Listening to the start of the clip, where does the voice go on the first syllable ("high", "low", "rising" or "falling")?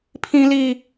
high